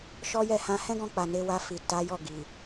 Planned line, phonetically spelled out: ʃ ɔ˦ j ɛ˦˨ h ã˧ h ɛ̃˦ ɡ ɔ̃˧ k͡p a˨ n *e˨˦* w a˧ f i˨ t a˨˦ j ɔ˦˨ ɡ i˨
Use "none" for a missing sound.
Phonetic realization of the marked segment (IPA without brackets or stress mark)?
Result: e˨˦